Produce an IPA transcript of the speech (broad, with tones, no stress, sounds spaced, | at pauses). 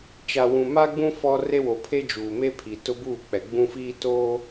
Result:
t͡ʃ a˨ w ũ˨ m a˦ ɡ͡b ũ˦ f ɔ˦ r e˦ w o˨ pʰ e˦ d͡ʒ uː˨ m e˦ pʰ i˨ t ʊ˦ b uː˦˨ k͡p ɛ˨ ɡ͡b ũ˦ f iː˦ t oː˦